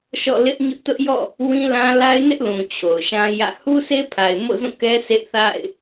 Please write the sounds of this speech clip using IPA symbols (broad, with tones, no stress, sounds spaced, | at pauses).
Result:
ʃ ɔ̰˦˨ l ɪ˦ ʔ ɲ ʊ˦ ʔ t ʊ˦ ʔ j ɔ̰˦˨ | w ĩ˦ l ã˦ l a˦ ɪ̯ n ɪ˦ ʔ l ũ˨ t͡ɕʰ o˨ ʊ̯ ʃ ã˦ j ä̰˦˨ h u˦ s e˦ pʰ a˨ ɪ̯ m o̰˦˨ z ũ˦˨ k ɛ˦ s ḛ˦˨ θ a̰˦˨ ɪ̯